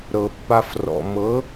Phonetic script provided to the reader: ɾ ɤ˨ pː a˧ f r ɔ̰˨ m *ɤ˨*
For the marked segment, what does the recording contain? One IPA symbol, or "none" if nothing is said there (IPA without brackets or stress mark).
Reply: ɤ˨˦